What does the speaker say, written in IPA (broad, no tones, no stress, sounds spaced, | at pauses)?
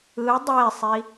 ɯ dˤ e sˤ i